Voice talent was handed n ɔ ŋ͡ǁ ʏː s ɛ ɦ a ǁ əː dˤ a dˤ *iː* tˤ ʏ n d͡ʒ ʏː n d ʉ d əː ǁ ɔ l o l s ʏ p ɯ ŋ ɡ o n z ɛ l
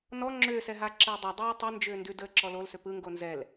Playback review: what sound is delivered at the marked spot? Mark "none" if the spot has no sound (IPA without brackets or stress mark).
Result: eː